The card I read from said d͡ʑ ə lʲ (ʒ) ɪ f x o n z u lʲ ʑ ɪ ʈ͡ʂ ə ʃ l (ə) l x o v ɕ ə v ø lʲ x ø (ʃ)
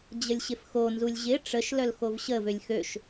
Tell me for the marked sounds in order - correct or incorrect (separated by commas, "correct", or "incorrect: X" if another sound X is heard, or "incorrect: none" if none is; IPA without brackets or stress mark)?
incorrect: ɕ, incorrect: œ, correct